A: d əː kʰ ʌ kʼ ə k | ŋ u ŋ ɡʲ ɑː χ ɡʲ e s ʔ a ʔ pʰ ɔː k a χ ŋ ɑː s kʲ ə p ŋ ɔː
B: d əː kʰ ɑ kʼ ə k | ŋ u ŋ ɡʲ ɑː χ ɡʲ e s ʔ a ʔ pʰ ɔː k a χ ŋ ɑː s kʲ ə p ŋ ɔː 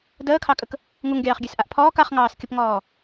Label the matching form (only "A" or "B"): B